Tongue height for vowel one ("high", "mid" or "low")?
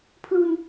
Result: high